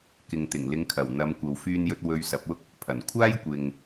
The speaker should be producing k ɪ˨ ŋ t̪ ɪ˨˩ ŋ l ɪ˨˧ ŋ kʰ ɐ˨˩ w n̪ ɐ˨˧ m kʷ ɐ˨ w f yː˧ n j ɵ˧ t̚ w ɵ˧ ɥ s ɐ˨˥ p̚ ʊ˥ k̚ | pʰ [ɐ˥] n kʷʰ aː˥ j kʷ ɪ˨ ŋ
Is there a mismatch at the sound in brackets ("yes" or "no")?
yes